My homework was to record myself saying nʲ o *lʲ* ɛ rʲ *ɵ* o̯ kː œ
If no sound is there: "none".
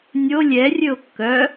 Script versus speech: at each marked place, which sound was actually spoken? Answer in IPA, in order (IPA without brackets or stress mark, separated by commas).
lʲ, ɵ